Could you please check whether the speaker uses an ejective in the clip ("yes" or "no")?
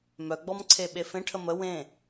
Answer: no